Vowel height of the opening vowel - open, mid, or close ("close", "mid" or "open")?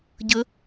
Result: mid